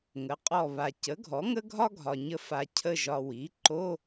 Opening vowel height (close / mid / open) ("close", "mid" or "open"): mid